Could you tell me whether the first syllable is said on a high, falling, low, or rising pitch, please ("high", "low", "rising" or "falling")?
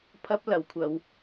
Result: high